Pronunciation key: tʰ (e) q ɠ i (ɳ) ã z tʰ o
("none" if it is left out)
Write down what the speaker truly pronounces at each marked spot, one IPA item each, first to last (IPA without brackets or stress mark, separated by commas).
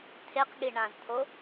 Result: e, ɳ